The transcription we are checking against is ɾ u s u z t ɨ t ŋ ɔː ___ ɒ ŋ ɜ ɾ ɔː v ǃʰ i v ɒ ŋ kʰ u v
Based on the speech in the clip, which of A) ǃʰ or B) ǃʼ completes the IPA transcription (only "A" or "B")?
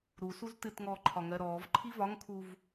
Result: A